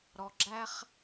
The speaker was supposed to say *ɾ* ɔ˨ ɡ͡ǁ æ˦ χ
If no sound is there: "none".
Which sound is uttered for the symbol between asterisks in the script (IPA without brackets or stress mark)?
ɾ